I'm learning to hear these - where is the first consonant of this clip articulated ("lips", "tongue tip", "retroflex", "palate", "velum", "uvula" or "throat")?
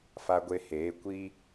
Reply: lips